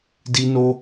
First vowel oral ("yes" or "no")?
yes